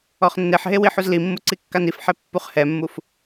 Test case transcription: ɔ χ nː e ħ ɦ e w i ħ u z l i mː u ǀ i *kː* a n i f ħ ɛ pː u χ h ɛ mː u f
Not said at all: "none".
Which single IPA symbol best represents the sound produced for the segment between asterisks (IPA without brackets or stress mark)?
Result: kː